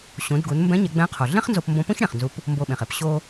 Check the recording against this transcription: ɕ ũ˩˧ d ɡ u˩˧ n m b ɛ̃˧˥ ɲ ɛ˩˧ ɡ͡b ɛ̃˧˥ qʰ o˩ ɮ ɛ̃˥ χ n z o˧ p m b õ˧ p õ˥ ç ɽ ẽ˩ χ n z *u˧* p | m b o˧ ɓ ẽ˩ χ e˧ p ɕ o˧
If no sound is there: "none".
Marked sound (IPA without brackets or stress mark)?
u˧